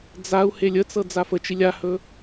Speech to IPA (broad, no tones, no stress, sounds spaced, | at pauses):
d͡z a u̯ h e lʲ ə t͡s ɤ d͡z a f ə t͡ʃ i lʲ a h ɵ